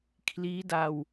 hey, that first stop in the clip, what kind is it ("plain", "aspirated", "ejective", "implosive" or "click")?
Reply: aspirated